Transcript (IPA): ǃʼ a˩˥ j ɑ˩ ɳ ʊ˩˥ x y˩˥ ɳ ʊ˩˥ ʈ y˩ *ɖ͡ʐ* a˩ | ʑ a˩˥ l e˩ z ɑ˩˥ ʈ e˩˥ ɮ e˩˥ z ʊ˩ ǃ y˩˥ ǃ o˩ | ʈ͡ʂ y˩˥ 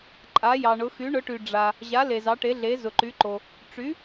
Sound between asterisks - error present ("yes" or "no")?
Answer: no